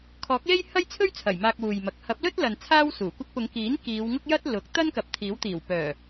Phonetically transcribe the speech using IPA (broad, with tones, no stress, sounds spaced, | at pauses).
kʰ ɔː˨˥ k̚ l e˥ j h ɐ˥ j t͡sʰ ɵ˥ ɥ t͡sʰ ɐ˨˩ j m aː˧ k̚ w uː˨ j m ɐ˨˥ k̚ h ɐ˨˥ p̚ l ɵ˥ t̚ l ɐ˨ n t͡sʰ aː˥ w s uː˨˩ kʷ ɐ˥ k̚ p ʊ˨˧ ŋ k iː˨˥ n k iː˨˧ w ŋ ʊ˥ k̚ j ɐ˥ t̚ l ʊ˨˥ k̚ t̪ ɐ˥ n k ɐ˨ p̚ t̪ʰ iː˨˥ w t̪ iː˨˩ w p œː˨˩